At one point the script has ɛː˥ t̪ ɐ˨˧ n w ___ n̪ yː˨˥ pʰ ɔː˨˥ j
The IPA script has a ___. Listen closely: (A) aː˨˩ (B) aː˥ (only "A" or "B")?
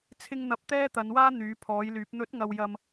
B